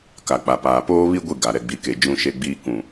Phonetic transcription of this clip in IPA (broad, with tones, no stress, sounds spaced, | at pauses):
k a˨ k͡p a˨ p aː˨ p oː˦ β i˦ ɡʷ i˦˨ ɡ a˨ ɾ ɛ˨ ɡ͡b i˨˦ k e˨ d͡ʒ ũ˦ ʃ e˦ ɡ͡b iː˦ k ũ˨